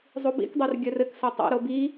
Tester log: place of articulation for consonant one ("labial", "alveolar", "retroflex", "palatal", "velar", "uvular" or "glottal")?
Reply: alveolar